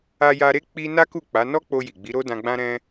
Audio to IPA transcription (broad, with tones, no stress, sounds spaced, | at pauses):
a˧ j a˧ ɾ e˦ k͡p i˦ n a˦ k u˦˨ k͡p a˨˦ n ɔ˦ k͡p o˧ j i˨ ɡ͡b i˨˦ ɾ o˦ d ã˧ ɡ͡b ã˦ ɾ ɛ̃˦